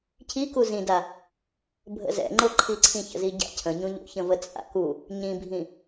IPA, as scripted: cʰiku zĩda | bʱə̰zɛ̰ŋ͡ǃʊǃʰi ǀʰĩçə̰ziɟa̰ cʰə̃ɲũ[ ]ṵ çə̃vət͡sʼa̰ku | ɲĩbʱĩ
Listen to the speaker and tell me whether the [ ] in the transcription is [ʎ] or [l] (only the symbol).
ʎ